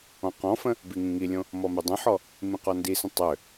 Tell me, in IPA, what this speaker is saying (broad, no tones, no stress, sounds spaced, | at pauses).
ɔ̃ q ɔ̃ f ə̃ | b i ŋ ĩ ŋ i lʲ õ | m ɔ m ø dˤ ə̃ ħ ɔ | m ĩ q ɔ n d i s ə̃ tˤ ø